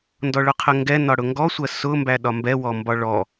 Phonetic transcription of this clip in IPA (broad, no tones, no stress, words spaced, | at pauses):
ndɔɭʊqʰəŋɡɛ nɒɽʊŋɡɔsʷɜ sʊmbæ ɗɒmbɛwɔ mbɒɭɔ